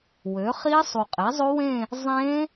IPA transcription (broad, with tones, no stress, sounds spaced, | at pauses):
w ø˩˥ χ i˦˥ sˤ u˨˩ qʼ e˩˥ zˤ o˦˥ w ẽ˥˧ | zˤ ẽ˦˥